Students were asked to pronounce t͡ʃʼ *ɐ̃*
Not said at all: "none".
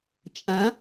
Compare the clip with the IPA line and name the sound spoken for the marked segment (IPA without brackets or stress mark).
ɐ̃